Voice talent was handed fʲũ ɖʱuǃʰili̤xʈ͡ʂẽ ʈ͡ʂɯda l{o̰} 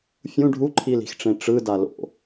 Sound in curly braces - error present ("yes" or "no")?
no